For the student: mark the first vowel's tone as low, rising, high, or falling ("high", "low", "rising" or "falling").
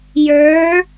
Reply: rising